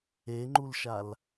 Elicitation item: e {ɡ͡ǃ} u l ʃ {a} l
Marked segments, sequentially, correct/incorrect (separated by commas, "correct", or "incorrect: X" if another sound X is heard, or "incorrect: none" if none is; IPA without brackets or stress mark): incorrect: ŋ͡ǃ, correct